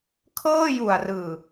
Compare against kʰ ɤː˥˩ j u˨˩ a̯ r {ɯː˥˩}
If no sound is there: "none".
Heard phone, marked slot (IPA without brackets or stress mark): ɯː˨˩